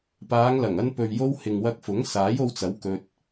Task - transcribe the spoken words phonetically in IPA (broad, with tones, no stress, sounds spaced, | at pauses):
p aː˨˧ ŋ l ɐ˨˩ ŋ ɐ˧ n p ɵ˨ ɥ j o˧ w h ɪ˨ ŋ w ɐ˧ k̚ f ʊ˨˥ ŋ s aː˨˥ j o˧ w t͡s ɐ˨˥ w k ɵ˧ t̚